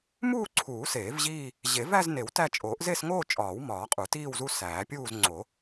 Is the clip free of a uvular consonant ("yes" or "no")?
no